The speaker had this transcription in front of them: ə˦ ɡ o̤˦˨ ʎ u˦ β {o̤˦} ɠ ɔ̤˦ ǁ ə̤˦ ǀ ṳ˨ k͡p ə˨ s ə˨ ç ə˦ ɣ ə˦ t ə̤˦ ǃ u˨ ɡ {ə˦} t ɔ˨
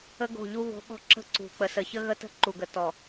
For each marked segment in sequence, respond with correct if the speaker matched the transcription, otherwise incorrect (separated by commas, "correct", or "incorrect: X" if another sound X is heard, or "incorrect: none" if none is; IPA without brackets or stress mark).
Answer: correct, incorrect: ə˨